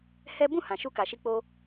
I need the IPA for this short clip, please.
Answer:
hɛ˦ bũ˦˨ hã˨ʃu˧ ka˨ʃi˧k͡po˧

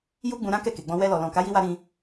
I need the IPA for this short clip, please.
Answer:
ju˦ɡ͡bũ˧ɾã˦ kɛ˦˨ke˨ɡ͡bɔ̃˧ wɛ˧lɔ˨lɔ̃˨ ka˨˦ji˧wa˧ ɾĩ˧

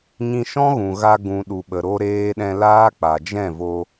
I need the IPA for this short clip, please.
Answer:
ɲĩ˧ʃɔ̃˦ɣũ˨ɣa˧ ɡũ˨ɗu˨ɓə˨ ɾo˦ɾeː˦ ɗɛ̃˧laː˦k͡pa˨ d͡ʒɛ̃˦˨vo˧

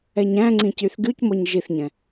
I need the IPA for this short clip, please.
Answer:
ɛɲæ̃ŋ͡ǀĩ cyθɡycmɔɲ ʒiθɲɛ̃

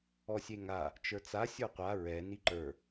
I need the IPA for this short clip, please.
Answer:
ɔsʲeŋa | t͡ʃə˞t͡sa sʲə˞qʷa ɹɛ niǃə˞

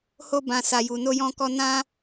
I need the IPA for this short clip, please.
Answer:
ho˦ bã˦sa˧ju˧ no˦jɔ̃˦kɔ˦ nã˦

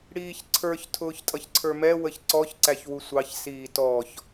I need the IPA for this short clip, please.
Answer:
ɽiːçǀʰə˞ç tʰʊːçtʼʌçǀʰə˞mɛ wəçǀɔç ǀæçwusʷɑç siːtɔç

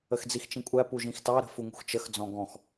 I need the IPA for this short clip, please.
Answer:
əxd͡zixt͡ʃĩkʷʼæ puʒĩxtɑ ɾə̤fuŋṳxt͡ʃəx d͡zɔ̃ɡɔ̃x

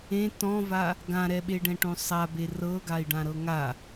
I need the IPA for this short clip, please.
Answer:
ẽ tɔ̃va | ɡãɾɛɓe ɖɛ̃ʈõsˤabe rɤɡai̯ ɖãɾɤŋa

